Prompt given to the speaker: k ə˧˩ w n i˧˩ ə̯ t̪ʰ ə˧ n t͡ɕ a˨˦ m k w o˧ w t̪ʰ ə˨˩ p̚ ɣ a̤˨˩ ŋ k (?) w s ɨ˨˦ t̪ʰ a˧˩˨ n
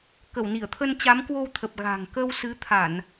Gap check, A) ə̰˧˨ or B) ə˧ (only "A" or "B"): B